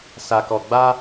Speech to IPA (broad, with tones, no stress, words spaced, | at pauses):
sa˨kɔ˨ ɡ͡ba˦